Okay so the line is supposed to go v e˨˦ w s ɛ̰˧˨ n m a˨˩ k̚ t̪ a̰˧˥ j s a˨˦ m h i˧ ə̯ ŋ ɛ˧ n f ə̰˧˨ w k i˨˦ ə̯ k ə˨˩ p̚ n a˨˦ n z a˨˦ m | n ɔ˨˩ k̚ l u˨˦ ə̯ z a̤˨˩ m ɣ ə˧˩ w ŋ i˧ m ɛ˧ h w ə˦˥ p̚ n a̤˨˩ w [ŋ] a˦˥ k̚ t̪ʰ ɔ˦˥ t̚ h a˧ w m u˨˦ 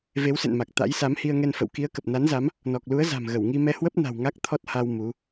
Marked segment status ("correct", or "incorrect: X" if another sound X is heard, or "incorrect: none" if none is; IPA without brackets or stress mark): correct